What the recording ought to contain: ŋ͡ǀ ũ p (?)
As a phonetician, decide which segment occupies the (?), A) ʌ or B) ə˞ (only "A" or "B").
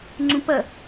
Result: A